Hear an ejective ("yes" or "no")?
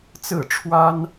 no